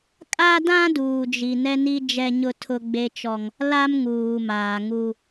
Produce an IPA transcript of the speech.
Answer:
kʼ a˦ d ã˦ d uː˨ d͡ʒ i˨ n ɛ˦ n i˦ d͡ʒ ɛ˦ ɲ ʊ˦ tʰ ʊ˦ ɡ͡b e˦ t͡ʃ ɔ˦ ŋ | l a˦ m ŋ uː˨ m aː˨ ŋ u˦

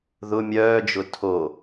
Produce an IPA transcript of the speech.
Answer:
ð ʊ mʲ œː d͡ʒ ʊ tʰ o

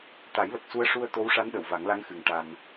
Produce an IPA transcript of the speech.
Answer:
t̪ a˨˩˦ j l ə˨˩ k̚ s u˧ ə̯ ʂ u˧ ə̯ t̪ o˧˥ w ʂ a˧˥ n ɗ ə˨˩˨ w v a˨˩˦ ŋ l a˧˥ ŋ x ɨ˨˩ ŋ ʈ a˧ n

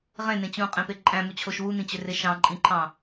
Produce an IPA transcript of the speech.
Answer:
ʁ ẽ n ẽ t͡ɕ ũ qʼ ẽ p e ǃʼ æ̃ m u t͡ɕʰ o ʃ w u n ĩ t͡ɕ ø r e ʃ ɑ̃ ǃʼ ĩ ǃʰ ɑ̃

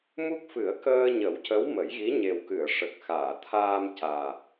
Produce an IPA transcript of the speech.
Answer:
m u˦˥ k̚ f ɨ˨˩˦ ə̯ k əː˧ ɲ ə˨˩˦ w c ə˧˥ w m ə˨˩˦ j ɣ i˧˥ ɲ e˨˩ w k ɨ˨˩˨ ə̯ ʂ ə˨˩ k̚ x aː˨˩˨ t̪ʰ aː˧ m c aː˨˩

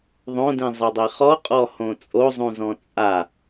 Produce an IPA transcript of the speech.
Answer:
ðˤ õ d ĩ zˤ ɤ dˤ i χ ɔ qʼ ɔ h õ t͡sʼ o zˤ ũ z ɔ̃ t͡sʼ a

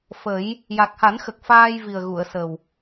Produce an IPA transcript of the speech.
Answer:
f ə˨˩˦ j | j a˨˩ k̚ h a˨˩˦ n x ə˨˩ k̚ f aː˧ j v i˨˩ ə̯ ɣ u˨˩˨ ə̯ s ə˨˩ w

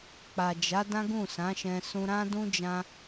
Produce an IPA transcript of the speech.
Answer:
k͡p a˨ d͡ʒ a˨˦ d ã˦ ɡ ũ˦˨ s ã˨˦ ʃ ɛ̃˧ s ũ˧ ɾ ã˦ d ũ˦ d͡ʒ ã˦

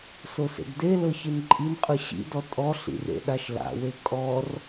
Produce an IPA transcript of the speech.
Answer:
s o s ḛ ɡ d e l ɤ ç i n ǃʼ i n qʼ ɯ ɕ ḭ d ɔ tʼ ɔ ɬ ḭ r ḛ ɗ a ʃ l a̰ w e kʼ ɔ r

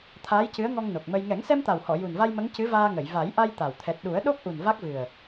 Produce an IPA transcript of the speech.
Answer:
t̪ʰ aː˧˥ j c ɨ˧˥ ə̯ ŋ ɔ˧ ŋ n o˨˩ k̚ m ə˧ j ŋ ɛ˨˩˦ ŋ s ɛ˧ m t̪ a˨˩ w h ɔ˨˩˨ j u˨˩ n v a˧ j m ə˧˥ ŋ c ɨ˧˥ v aː˧ ŋ ə˨˩˨ j v a˨˩˦ j ʔ a˧ j t̪ a˨˩ w t̪ʰ ɛ˨˩ t̚ ɗ u˨˩˦ ə̯ ɗ o˦˥ k̚ ʔ u˨˩ n v a˦˥ k̚ v ɨ˨˩ ə̯

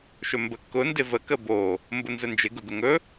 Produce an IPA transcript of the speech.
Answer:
ʃ ɵ m b ə kː ʊ n d ɪ v ə k ə b o | m b ʊ n z ɵ n d͡ʒ ɪ ɡ ʊ ɡ ʊ ŋ ɵ

